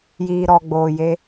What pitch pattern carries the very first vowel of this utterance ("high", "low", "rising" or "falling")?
low